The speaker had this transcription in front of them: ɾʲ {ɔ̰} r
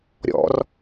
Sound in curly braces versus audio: correct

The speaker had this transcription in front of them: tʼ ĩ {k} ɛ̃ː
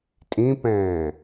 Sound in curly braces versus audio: incorrect: p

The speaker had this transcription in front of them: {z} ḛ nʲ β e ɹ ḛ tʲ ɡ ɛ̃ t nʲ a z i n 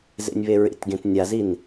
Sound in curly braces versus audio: correct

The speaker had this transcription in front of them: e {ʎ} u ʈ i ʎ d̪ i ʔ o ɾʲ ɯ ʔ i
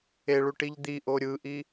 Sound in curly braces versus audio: incorrect: ɭ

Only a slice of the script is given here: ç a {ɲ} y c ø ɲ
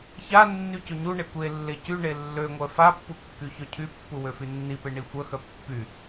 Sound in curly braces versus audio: incorrect: nː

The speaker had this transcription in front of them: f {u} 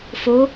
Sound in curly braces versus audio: incorrect: o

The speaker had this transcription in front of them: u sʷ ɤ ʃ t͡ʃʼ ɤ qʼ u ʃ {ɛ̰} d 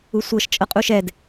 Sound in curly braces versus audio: incorrect: ɛ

